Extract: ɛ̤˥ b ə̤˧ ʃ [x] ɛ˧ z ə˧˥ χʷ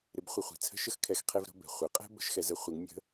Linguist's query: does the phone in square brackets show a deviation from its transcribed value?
no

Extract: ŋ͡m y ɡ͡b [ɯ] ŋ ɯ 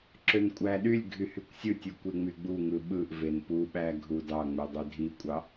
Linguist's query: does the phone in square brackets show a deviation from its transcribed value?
yes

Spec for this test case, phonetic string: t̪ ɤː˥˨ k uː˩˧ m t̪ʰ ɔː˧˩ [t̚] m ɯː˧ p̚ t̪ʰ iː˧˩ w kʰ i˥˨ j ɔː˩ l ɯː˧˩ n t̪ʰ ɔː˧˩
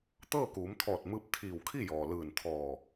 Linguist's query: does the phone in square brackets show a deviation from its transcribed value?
no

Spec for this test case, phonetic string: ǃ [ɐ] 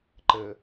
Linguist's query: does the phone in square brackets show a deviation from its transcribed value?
yes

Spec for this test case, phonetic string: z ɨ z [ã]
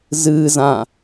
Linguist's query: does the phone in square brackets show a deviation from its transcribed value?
no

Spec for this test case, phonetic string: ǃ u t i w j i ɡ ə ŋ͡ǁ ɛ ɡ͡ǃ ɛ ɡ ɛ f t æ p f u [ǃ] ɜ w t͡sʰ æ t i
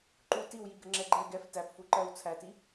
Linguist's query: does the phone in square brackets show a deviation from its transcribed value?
no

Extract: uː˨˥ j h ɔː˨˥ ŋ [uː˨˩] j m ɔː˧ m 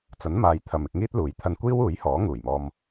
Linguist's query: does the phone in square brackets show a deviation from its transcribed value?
no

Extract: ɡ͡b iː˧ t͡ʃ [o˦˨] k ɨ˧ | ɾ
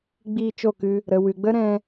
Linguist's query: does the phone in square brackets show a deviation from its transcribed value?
no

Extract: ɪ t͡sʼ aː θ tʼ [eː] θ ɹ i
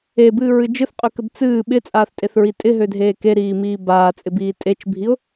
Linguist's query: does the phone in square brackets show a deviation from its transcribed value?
yes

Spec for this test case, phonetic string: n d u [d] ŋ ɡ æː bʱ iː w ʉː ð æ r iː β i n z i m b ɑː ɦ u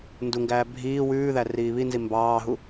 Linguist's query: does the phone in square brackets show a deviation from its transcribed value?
yes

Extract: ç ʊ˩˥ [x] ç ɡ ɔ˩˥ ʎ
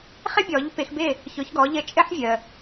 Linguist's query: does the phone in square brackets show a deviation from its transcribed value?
yes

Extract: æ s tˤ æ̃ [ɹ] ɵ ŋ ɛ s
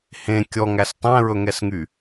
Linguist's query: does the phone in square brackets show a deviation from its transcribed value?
no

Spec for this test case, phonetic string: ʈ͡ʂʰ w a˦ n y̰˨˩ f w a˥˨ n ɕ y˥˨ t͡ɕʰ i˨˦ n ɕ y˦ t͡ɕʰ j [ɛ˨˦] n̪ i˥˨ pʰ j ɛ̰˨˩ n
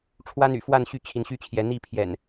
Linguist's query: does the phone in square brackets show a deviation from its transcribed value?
no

